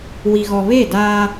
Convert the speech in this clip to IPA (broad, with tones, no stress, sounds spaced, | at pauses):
w i˨ ɣ ɔ˨ β e˦˨ d aː˦